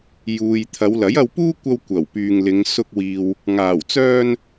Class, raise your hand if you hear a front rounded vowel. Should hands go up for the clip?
yes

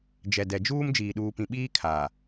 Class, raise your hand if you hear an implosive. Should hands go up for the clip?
yes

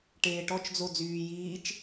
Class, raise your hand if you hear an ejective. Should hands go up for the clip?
no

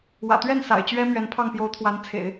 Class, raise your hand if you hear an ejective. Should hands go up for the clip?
no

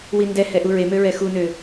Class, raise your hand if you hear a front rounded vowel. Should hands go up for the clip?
yes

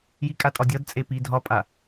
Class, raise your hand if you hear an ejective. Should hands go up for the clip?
yes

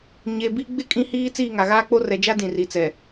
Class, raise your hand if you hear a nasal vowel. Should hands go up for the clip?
yes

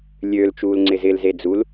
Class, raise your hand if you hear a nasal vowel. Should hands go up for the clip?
no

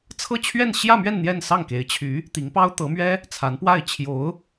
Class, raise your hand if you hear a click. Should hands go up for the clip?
no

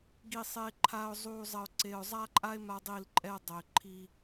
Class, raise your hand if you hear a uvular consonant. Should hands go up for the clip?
no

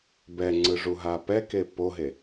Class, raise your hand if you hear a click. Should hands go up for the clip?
yes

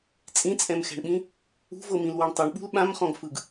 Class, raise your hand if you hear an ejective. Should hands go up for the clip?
yes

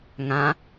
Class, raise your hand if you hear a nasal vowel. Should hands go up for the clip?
yes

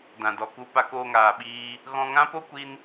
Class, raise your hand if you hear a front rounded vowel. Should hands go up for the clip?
no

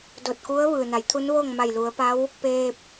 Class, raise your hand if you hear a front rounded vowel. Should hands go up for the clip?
no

